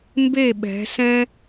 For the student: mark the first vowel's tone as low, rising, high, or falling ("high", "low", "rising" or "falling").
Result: falling